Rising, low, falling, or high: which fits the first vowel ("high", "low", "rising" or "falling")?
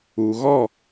low